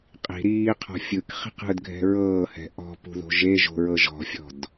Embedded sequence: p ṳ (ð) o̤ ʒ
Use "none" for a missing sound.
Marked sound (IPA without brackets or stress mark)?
ð